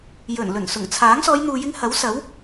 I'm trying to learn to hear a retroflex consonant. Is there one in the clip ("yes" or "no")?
no